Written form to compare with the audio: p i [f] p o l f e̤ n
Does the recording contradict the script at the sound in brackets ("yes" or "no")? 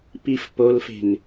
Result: no